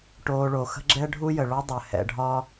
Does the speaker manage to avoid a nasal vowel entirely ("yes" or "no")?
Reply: yes